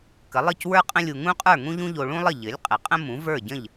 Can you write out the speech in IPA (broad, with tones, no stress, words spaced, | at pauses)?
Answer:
kə˩˥lˠɨ˥˩cwə˞˥ qʼə̃˥lʲu˧ ŋũ˥qʼə˞˥˩ ŋũ˥ʎũ˥ʎo˧ ɭũ˥lˠə˥˩ ʎɘ˩˥lʲ qʼɘ˩qʼə̃˥ mũ˩˥ və˞˥˩ɟə̃˥˩ʎ